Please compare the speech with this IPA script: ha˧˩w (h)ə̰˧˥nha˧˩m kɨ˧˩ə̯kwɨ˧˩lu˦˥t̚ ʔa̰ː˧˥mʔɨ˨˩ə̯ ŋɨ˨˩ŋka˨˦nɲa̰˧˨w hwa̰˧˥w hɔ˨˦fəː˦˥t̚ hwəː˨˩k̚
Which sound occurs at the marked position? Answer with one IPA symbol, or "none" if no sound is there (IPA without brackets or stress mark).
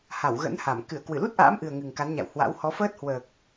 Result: ɣ